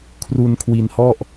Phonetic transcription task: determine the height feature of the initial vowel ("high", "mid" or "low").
high